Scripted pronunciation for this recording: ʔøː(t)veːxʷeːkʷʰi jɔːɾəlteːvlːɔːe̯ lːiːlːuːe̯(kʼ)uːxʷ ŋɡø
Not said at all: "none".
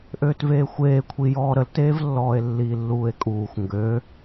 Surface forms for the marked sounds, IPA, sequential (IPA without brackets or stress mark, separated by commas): t, kʼ